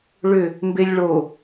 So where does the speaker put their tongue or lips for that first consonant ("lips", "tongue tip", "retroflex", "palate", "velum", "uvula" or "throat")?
retroflex